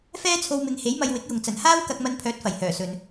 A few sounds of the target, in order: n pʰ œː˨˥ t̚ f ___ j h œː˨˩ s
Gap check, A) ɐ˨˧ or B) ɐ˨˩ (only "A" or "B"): B